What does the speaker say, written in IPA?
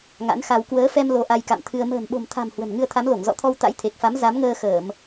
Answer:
ŋ a̰˧˥ n x a˧ w k w əː˨˦ f ɛ˧ m l o˧ ʔ a˧ j k a̰˧˨ m t̪ʰ ɨ˧ ə̯ m ə̤ː˨˩ n ɓ o̤˨˩ m t̪ʰ a̤˨˩ m h w ə̤˨˩ n ŋ ɨ˧ ə̯ t̪ʰ a˨˦ m l o˧˩ ŋ z ɔ̰˧˨ t̪ʰ ɔ˧ w t̪ a̰˧˥ j t̪ʰ e˨˩ k̚ f a˨˦ m z a˨˦ m ŋ əː˧ x əː˧˩˨ m

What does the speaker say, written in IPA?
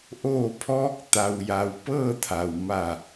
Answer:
ʔ oː˧˩ pʰ ɔː˧ k̚ t̪ a˩ w j a˩ w p ɤː˥˨ t̪ʰ a˩ w m a˧˩

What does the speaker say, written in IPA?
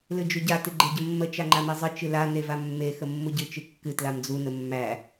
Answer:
l ɨ d͡ʒ u ɟ a t ɨ ɡ͡ǃ e ɟ ə mː ə t͡ʃ a ŋ͡ǃ a m e zˤ ɨ t͡ʃ ɨ l a n e v a mː e x ə mː u ɟ ɨ t͡ʃ ɨ kː ɨ t l a m d͡z u n ə mː æ

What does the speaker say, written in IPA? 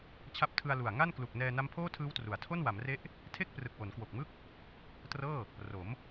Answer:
t͡ɕʰ a˦˥ p̚ tʰ ɯ˧ a̯ l u˨˩ a̯ ŋ a˥˩ n k l u˨˩ k̚ n ɛː˧ n a˦˥ m pʰ oː˥˩ tʰ ɯː˦˥ w t r u˩˦ a̯ tʰ o˥˩ n w a˩˦ m r e˦˥ ʔ | tʰ e˥˩ k̚ p r ɯ˨˩ k̚ w o˩˦ n k w o˨˩ k̚ m ɯ˥˩ k̚ | t r ɤː˥˩ | r o˩˦ m

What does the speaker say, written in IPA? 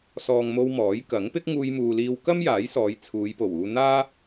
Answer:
s ɔː˨ ŋ m o˧ w m ɔː˨˥ j k ɐ˨˥ ŋ p ɪ˥ k̚ ŋ uː˧ j m uː˨ l iː˧ w k ɐ˥ m j aː˨˥ j s ɔː˨˧ j t͡sʰ uː˨˧ j p o˨˩ w uː˧ n̪ aː˥

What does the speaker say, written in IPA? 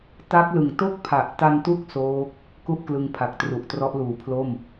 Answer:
t a˦˥ k̚ l ɯ˨˩ ŋ t o˥˩ k̚ pʰ a˨˩ ʔ t a˧ n t u˦˥ k̚ s oː˦˥ k̚ | k u˥˩ ʔ k l ɯ˧ ŋ pʰ a˨˩ k̚ t r u˨˩ ʔ t r ɔ˦˥ ʔ l uː˨˩ pʰ l o˥˩ m

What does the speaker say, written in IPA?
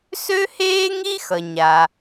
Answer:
s ø˥ h eː˥ ŋ i˥ x ʌ˩ ɲ a˩

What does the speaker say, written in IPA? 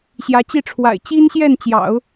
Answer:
ɕ j ä˧˥ t͡ɕ i˥˩ ʈ͡ʂʰ w a̰˨˩ ɪ̯ t͡ɕ i˥ n ɕ j ɛ˥˩ n t͡ɕ j ɑ̰˨˩˦ ʊ̯

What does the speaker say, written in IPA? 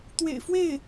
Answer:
t̪ w ḛ˨˩ ɪ̯ f w e˥˩ ɪ̯

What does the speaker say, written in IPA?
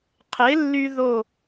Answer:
qʰ e˩˥ lː y˧ ð o˥˩

